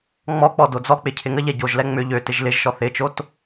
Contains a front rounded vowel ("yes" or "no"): yes